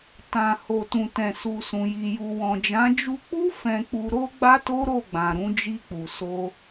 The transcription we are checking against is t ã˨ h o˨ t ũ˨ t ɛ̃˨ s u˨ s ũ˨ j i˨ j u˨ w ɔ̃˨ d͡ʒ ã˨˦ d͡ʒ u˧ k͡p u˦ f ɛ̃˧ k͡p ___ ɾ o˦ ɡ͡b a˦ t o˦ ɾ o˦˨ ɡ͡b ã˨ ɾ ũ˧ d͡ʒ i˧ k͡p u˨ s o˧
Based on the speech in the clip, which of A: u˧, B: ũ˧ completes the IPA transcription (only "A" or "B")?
A